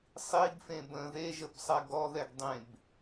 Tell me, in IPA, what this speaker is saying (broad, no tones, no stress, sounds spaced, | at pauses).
sˤ i ɡ f ẽ b ə̃ ð e ʒ ə b sˤ ɛ ɡ ɔ ð ɛ ɡ dˤ ẽ b